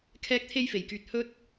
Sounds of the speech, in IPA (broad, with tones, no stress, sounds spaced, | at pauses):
kʰ ɛː˥ k̚ t̪ʰ e˥ j f e˨˩ j k yː˧ t̚ h ɵ˥ t̚